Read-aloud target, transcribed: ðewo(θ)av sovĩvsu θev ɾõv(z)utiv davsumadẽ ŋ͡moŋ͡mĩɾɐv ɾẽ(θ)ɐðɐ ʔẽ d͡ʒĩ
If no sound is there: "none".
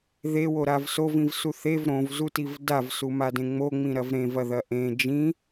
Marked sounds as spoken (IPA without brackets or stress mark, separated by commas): ɾ, z, v